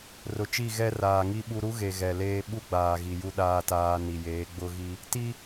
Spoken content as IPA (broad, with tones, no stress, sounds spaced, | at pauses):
r ʊ˨ t͡ʃ i˦˨ ɣ ɛ˦ r aː˨ ŋ i˦ ɓ u˦ ɾ u˦ ɣ e˨ ɣ ɛ˨ l eː˦ ɓ u˦ ɡ͡b aː˨ ɣ i˨ j u˦ ɗ aː˦ t aː˦ n i˨ j eː˨˦ ɡ͡b ʊ˦ ɣ i˦ | t i˦